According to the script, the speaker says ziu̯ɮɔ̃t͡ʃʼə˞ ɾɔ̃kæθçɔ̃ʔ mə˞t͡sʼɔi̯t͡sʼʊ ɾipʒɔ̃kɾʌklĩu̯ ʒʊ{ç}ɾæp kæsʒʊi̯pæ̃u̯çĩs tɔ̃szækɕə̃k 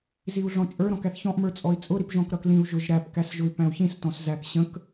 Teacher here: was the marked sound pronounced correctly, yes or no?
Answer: no